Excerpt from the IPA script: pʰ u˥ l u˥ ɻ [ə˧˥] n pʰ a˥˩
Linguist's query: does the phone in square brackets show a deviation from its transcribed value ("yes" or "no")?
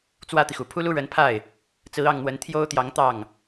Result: no